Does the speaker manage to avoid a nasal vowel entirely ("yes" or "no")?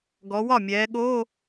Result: yes